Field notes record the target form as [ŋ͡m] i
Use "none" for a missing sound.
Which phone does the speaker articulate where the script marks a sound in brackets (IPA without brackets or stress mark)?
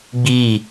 ɡ͡b